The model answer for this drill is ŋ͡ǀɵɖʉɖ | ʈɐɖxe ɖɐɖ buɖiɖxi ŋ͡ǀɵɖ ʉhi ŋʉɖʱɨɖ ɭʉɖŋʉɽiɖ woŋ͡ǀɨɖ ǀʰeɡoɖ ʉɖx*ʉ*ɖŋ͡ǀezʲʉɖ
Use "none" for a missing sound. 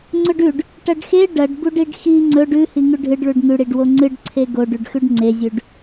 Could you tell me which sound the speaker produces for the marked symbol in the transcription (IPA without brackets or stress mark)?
ʉ